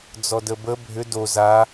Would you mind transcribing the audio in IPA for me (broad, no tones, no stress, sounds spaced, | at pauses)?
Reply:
d͡z ɔ d ə b ə bʱ ʏ d o z a